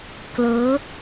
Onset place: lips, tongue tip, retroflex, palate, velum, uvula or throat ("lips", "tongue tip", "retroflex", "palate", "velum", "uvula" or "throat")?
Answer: velum